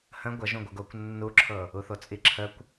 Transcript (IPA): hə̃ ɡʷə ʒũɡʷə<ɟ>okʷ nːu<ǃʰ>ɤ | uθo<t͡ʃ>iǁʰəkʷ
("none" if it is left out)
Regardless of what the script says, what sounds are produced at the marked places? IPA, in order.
ɡ, ǁʰ, t͡sʼ

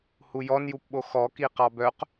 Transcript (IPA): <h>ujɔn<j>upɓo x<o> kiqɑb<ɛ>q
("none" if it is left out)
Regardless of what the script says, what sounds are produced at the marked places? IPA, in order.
h, j, ɔ, œ

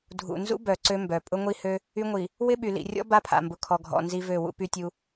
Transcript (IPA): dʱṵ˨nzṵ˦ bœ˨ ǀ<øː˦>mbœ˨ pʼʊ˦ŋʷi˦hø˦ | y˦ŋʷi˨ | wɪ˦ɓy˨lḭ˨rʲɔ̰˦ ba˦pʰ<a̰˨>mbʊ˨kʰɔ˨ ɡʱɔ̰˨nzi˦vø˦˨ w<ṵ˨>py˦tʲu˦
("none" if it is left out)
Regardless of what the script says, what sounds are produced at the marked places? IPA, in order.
ø˦, a̰˨, ṵ˦

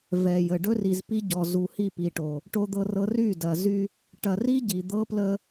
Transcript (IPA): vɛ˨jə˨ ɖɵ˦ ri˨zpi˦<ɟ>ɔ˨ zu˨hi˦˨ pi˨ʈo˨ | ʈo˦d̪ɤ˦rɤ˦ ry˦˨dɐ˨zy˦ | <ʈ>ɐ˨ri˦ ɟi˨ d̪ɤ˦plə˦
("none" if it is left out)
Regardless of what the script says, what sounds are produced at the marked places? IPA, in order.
ɟ, ʈ

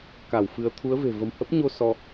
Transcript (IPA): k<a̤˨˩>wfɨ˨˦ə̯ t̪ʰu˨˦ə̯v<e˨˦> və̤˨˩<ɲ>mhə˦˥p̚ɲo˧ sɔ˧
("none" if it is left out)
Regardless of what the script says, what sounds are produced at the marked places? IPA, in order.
a˧˩, e̤˨˩, none

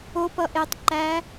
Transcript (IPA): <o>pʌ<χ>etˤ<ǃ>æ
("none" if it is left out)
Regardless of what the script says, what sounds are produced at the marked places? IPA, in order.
o, ʔ, ǃ

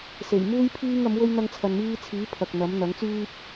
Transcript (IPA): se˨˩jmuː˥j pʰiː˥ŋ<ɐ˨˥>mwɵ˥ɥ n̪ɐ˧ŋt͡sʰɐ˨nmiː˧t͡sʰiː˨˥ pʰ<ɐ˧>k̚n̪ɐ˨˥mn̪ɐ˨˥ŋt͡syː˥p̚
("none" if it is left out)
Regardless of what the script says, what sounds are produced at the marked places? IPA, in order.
ɐ˨˥, ɐ˨

